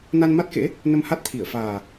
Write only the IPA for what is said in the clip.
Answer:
na˧nma˦˥t̚kḛ˧˥ | nə˧mha˦˥t̚t̪ʰi˧˩ə̯ faː˨˩

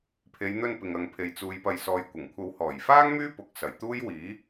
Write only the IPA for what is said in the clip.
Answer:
pʰe˨˧jn̪ɵ˧n pɪ˨ŋɐ˨ŋpʰe˨jt͡suː˨˧j pɐ˨jsɔː˨jkʷɐ˨˩ŋkʷʰɐ˨˧w hɔː˨˩jfaː˥ŋ myː˥pʊ˨˥k̚sɐ˨˩j t̪uː˥j wiː˨˥

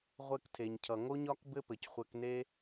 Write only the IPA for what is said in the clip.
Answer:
ʁʷɘ˧ktʰe˨ɲcʰʌ˨ ŋo˦ɲɒ˦k bɘ˦pɘ˨c χʷɘ˧kne˦

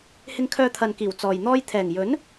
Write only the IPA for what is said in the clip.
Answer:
hɪ˧ŋkʰœː˧t̪ʰɐ˨nkiː˨˩w t͡sɔː˨j n̪ɔː˧jt̪ʰɛː˨˩ŋjɵ˨˥n

